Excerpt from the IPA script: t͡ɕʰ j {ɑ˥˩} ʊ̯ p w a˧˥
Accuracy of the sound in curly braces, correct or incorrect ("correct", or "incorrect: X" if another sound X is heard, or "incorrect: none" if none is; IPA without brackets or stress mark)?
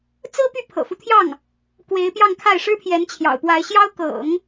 incorrect: ɑ̰˨˩